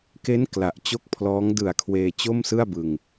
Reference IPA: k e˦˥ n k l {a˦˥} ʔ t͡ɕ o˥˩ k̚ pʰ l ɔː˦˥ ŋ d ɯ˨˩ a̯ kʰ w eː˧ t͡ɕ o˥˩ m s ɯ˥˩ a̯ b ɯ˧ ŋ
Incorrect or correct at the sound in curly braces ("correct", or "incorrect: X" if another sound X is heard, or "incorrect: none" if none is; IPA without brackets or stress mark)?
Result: incorrect: a˨˩